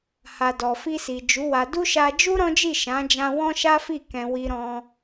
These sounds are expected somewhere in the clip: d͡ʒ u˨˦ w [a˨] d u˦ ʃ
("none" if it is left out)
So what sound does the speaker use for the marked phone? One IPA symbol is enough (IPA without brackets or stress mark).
a˧